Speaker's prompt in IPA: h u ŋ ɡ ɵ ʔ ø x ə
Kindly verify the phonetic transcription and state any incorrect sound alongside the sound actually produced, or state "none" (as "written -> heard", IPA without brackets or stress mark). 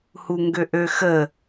ɵ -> ø